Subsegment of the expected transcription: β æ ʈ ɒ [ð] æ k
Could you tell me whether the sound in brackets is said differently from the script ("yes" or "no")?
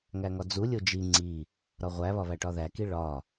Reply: no